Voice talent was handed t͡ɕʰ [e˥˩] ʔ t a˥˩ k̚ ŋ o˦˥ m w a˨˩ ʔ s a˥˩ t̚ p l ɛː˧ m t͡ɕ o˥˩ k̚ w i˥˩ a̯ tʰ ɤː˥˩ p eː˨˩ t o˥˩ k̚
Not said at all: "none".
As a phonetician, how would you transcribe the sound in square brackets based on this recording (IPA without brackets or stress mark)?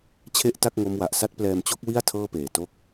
e˥˩